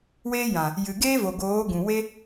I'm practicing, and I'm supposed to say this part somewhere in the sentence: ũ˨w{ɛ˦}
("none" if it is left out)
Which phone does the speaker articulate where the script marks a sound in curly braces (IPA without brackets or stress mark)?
e˦